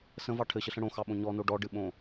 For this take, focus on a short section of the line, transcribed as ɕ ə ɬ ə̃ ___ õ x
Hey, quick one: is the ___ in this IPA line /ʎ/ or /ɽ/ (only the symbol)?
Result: ɽ